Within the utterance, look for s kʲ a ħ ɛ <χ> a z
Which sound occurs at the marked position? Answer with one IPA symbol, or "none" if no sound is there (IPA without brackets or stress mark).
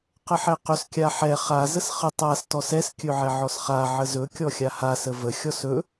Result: χ